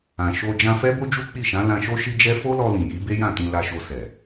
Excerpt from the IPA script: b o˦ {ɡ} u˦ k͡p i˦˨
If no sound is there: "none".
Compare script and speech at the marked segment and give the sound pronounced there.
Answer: d͡ʒ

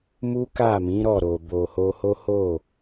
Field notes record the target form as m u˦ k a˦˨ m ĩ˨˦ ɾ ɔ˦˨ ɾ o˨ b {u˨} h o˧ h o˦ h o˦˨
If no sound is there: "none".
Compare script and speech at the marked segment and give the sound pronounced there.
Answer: o˨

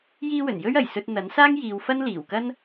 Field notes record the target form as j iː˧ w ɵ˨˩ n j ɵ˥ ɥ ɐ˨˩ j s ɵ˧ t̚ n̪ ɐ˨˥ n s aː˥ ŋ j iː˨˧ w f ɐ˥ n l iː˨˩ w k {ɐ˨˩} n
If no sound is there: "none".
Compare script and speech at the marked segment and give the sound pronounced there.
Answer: ɐ˥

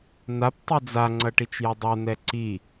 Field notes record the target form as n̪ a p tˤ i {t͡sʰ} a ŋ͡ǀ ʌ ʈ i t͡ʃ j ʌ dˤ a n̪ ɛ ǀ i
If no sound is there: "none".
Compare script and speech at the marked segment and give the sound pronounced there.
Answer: d͡z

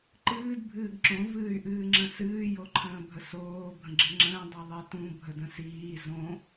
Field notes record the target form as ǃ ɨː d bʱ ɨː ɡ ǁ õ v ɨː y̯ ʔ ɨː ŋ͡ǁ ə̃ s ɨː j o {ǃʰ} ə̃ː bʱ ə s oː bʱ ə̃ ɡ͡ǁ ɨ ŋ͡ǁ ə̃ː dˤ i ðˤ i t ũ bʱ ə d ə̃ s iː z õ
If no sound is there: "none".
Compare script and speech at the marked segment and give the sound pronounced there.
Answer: ǃʰ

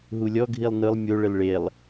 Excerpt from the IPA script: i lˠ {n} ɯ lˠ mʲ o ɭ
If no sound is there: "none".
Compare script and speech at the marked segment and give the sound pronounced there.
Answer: n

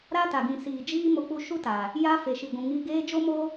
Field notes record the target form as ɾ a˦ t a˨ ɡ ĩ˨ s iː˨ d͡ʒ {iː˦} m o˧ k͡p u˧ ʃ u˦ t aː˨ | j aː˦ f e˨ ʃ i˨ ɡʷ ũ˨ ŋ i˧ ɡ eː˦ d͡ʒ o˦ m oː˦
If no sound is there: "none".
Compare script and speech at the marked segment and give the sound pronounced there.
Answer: iː˦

